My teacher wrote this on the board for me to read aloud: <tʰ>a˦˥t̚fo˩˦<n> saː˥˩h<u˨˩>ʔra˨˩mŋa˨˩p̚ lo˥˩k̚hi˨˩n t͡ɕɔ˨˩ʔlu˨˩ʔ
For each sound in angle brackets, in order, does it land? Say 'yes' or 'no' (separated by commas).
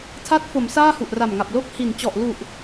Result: yes, no, yes